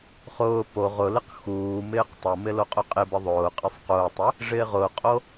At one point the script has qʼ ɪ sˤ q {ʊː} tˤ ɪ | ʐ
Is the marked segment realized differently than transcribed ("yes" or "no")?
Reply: no